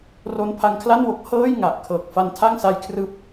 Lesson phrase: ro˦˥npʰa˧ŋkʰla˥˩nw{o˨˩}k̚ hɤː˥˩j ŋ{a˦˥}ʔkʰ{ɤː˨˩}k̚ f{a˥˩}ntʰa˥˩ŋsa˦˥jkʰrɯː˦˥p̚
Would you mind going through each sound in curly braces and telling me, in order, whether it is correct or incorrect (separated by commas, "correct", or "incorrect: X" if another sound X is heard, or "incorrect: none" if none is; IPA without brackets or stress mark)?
incorrect: o˦˥, incorrect: a˨˩, correct, incorrect: a˧